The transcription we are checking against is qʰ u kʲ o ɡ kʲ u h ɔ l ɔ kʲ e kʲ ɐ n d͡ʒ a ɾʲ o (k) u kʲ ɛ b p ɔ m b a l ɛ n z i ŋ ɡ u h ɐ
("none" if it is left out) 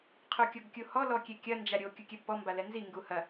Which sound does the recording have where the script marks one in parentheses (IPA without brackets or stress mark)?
kʲ